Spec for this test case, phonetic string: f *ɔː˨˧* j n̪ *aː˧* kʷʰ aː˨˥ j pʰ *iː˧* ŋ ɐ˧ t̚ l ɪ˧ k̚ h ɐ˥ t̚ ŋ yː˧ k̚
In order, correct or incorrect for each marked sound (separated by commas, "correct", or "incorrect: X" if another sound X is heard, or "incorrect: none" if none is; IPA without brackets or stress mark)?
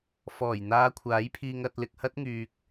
incorrect: ɔː˨˩, correct, correct